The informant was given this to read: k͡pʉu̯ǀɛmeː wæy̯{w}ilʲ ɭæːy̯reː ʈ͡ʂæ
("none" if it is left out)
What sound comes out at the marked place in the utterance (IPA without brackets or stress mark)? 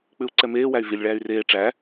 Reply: v